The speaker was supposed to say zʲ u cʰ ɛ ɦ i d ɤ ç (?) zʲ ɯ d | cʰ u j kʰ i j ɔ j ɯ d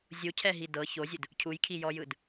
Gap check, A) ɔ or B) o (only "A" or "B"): B